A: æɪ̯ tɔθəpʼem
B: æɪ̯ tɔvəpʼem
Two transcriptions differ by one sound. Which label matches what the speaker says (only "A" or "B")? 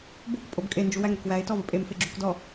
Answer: B